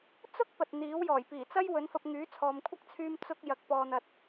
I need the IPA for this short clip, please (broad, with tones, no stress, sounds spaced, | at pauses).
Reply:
t͡s ʊ˥ k̚ p ɐ˨ t̚ n̪ iː˨˥ w j ɔː˨˩ j p iː˨˩ t͡s ɐ˥ j w ɵ˨˥ n f ɐ˧ p̚ ŋ yː˨˥ t͡sʰ ɔː˨ m kʷʰ ɐ˥ k̚ t͡sʰ yː˧ m t͡s ʊ˧ k̚ j ɐ˨ k̚ p ɔː˨ n̪ ɐ˨ t̚